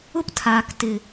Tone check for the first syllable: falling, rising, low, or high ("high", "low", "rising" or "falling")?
high